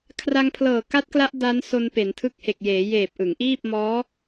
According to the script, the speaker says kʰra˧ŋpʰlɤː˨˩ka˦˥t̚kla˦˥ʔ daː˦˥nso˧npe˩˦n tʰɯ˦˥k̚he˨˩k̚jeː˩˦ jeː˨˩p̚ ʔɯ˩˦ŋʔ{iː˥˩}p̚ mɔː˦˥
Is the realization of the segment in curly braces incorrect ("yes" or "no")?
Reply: no